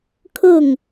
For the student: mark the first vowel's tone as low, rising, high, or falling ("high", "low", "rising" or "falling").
falling